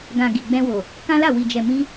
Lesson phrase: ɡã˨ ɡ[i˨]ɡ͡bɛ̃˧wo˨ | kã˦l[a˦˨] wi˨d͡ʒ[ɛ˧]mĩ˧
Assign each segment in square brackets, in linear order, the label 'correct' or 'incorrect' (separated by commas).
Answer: correct, correct, incorrect